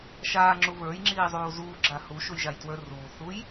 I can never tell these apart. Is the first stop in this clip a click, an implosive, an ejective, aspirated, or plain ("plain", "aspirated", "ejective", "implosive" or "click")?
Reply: click